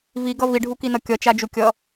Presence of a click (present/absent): absent